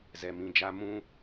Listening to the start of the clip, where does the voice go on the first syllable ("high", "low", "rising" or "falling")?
low